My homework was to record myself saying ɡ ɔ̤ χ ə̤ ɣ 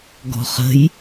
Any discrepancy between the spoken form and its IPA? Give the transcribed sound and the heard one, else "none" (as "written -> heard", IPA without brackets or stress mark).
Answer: ɣ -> j